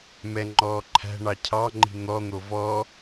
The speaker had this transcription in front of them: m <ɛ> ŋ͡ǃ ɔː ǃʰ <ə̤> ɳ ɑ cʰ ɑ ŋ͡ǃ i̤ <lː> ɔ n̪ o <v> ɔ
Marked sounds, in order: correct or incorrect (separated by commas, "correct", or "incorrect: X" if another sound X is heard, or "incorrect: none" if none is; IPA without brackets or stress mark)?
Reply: correct, incorrect: æ̤, incorrect: n̪, correct